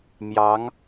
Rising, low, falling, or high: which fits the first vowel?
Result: rising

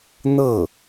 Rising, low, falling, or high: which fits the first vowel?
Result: falling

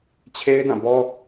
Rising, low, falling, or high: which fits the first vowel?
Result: high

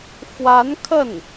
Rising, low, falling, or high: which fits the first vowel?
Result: rising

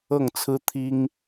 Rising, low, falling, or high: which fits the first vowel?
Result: falling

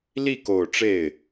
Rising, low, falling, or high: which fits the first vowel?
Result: falling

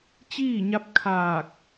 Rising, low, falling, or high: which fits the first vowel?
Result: falling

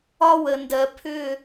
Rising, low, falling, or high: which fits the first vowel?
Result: high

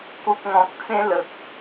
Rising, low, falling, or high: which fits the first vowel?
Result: low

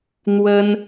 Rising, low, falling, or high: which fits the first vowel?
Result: high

